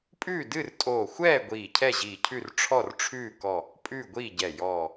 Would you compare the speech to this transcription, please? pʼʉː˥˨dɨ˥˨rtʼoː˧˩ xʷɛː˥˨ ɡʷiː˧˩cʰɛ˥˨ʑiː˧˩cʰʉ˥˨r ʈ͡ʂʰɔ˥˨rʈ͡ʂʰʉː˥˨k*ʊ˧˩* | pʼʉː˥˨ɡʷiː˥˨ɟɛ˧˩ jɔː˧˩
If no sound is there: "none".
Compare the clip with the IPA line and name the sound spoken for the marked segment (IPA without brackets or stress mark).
ɔ˧˩